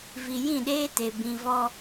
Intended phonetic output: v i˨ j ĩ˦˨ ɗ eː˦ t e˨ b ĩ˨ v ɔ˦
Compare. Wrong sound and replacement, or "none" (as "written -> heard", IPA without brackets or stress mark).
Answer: none